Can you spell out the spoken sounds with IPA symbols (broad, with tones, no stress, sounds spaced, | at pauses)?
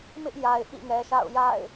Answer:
m ɪ˦ ʔ j a˨ ɪ̯ ʔ ḭ˦˨ ŋ ɛ˨ ʃ a̰˦˨ ʊ̯ j a̰˦˨ ɪ̯